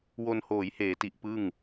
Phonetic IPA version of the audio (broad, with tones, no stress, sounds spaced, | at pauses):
w o˧ n h oː˩˦ j h eː˩˦ t i˨˩ ʔ p ɯ˥˩ ŋ